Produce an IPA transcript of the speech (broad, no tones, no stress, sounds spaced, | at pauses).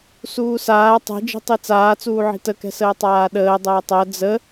s uː s aː tˤ ɛ̤ d͡ʒ i̤ tˤ i t͡s aː t͡s uː ʕ i̤ t ə k ɛ̤ s əː tˤ aː ɗ əː dˤ əː tˤ ɜ d͡z ə